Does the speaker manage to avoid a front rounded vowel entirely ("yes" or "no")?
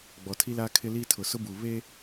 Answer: yes